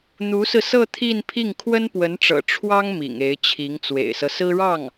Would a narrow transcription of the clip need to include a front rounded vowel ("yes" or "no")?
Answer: no